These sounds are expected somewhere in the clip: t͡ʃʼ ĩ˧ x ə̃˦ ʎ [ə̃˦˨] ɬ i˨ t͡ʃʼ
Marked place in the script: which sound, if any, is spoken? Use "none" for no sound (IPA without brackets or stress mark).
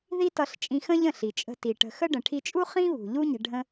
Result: ə̃˦˨